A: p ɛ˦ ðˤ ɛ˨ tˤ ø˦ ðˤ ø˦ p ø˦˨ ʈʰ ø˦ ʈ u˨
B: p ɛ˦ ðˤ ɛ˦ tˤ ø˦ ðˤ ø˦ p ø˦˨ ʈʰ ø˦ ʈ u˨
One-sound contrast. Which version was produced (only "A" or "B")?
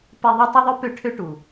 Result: B